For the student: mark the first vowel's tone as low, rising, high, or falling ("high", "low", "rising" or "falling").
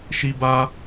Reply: high